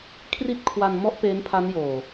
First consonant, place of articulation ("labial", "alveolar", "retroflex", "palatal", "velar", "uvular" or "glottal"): velar